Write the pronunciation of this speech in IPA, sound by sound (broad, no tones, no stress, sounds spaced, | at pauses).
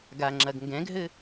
ɡ a ŋ͡ǁ ɐ ɡ ŋ ɡ ɛ̃ ɡ ɦ ɘ